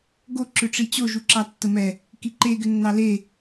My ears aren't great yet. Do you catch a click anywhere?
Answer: yes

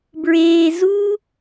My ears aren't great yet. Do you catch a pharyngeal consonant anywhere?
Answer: no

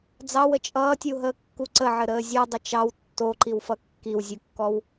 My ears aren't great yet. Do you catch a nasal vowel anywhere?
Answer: no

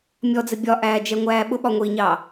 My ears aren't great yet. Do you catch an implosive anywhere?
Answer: yes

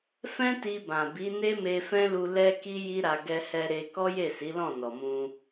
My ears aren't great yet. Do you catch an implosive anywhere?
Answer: no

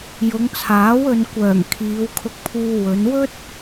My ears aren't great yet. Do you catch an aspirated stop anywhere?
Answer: yes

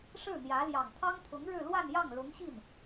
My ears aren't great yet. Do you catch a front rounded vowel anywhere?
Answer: no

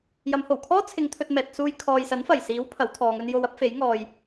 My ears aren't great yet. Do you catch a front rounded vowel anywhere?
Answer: no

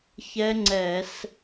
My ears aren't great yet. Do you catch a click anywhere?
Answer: yes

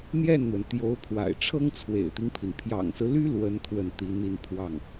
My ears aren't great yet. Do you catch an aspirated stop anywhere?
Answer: yes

